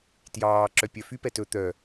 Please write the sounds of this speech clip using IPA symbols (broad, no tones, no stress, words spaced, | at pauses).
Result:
tjɑː ǁœpʲœfyp ɛtɵ t̪œ